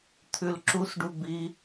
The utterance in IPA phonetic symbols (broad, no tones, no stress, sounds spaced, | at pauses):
t̪ʰ ʉ l ǁ u s ɖ u b i